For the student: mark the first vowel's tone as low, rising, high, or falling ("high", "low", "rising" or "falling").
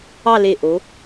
falling